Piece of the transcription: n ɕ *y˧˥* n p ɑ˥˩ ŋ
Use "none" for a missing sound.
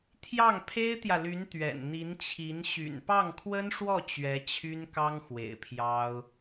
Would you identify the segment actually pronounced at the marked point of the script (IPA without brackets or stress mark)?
y̰˨˩